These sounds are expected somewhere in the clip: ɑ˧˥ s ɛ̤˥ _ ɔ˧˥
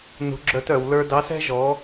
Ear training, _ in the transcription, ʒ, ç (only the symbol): ʒ